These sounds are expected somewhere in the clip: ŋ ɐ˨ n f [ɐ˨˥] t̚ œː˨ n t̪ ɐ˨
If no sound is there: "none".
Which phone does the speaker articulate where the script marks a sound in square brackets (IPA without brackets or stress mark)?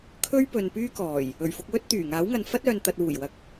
ɐ˥